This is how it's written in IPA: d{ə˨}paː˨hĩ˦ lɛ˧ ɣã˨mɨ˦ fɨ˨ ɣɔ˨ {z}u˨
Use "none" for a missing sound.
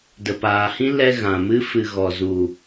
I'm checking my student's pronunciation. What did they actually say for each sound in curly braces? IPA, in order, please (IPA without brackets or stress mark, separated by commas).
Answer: ə˨, z